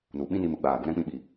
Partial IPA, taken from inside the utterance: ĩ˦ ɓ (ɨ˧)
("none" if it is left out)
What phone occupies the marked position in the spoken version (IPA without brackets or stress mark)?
i˧